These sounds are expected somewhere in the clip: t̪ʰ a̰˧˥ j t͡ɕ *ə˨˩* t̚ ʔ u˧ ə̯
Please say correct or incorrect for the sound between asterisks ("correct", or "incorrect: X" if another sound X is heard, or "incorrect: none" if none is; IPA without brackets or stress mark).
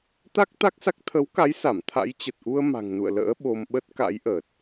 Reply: correct